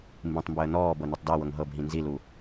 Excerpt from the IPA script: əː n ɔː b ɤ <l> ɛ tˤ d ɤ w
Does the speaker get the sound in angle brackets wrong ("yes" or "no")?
yes